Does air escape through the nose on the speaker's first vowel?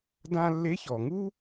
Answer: yes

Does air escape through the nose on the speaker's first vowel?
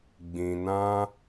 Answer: yes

